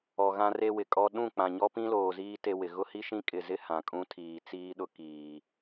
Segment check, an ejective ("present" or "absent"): present